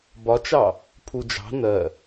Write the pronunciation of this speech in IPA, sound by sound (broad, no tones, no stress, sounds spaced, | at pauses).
b ɒ t͡ʃ ɑ | pʰ u d͡ʒ ɑ̤ n ɜ